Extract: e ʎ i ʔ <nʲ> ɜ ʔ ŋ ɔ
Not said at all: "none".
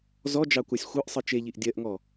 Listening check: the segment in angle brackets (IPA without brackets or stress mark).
dʲ